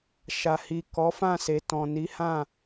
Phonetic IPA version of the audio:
ʃa˨hi˨ kɔ˨˦fã˦˨se˨ tɔ̃˨ni˨˦hã˦˨

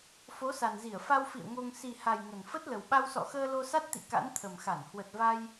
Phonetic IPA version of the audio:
fo˨˦sa˨˩nzi˧˩ə̯ fa˧wfḭ˧˨ə̯ ŋo˧ŋ si˨˩ha˨˩j ŋə˨˩nfə˦˥t̚lə˨˩w ɓa˧wsɔ̰˧˨xəː˧ lo˧sa˦˥t̚t̪ḭ˧˨ ka̰˧˥nt̪ʰə˨˩mxa˧˩n hwə˨˩t̚va˧j

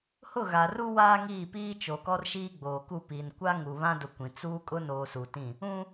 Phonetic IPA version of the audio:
hʊ˦˨ɣa˨ruː˦ waː˦ŋiː˦˨ piː˦ t͡ʃo˨kɔ˦rʃiː˦ ɡ͡boː˨ku˦˨piː˨n kʷa˦ŋu˨ βã˦dʊ˨ kʷĩ˨t͡suː˦ kʼʊ˦noː˨suː˨tĩ˦˨ | ũ˦

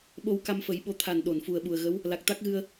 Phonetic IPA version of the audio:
ɓo˧wka˧mfə˨˩˦j ɓo˧˥ t̪ʰa˨˩nɗo˨˩˨nfu˨˩ə̯ ɓu˨˩ə̯ɣə˧˥w | la˨˩k̚t̪a˦˥k̚ɣɨ˧ə̯

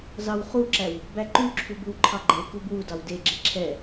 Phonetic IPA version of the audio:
zɑwχuǁæw | bæǃʉǁʰu bʉwǃʰɑɡ͡ǃeku bwudɑw deɡ͡ǁe ǁʰɛ

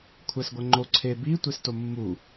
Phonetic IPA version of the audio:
kʷʰæsɡʷæŋ͡ǃo ǀʰe bi tʷestomːu

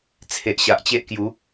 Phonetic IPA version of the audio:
t͡sʰe˨ʔɕa˨ʔt͡ɕe˦ʔkju˨˦

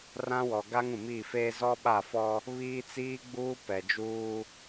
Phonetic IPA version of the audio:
rã˦wɔ˨ ɡa˦ŋũ˨miː˦˨feː˦ zɔ˦ɓa˦˨fɔ˦ | βiː˦t͡siː˦ɡ͡buː˦ pɛ˨d͡ʒuː˦

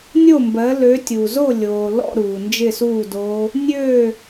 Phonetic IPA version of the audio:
nʲo˥˨mbɜ˨˦ lø˨˦tʲu˩zo˥˨ lʲoː˩lɔ̰˥˨ ɾuː˩nd͡ʒɪ˥˨suː˥˨do˦˥ | nʲøː˥˨

